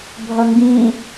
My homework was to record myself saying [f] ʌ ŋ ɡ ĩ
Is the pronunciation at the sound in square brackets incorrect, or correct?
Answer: incorrect